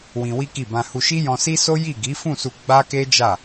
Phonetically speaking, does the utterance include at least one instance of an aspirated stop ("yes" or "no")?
no